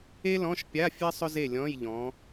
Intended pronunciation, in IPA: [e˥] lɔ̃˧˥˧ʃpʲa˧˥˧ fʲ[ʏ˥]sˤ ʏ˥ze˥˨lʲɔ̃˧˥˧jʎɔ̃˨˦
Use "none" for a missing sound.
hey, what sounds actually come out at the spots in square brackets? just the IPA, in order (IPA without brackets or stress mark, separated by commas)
e˥, ɛ˥